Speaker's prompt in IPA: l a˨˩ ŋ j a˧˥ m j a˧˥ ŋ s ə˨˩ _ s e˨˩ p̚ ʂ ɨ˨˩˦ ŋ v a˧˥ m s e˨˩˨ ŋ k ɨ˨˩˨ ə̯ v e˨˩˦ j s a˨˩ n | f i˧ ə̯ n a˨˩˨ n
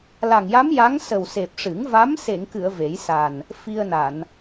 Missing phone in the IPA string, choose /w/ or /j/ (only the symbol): w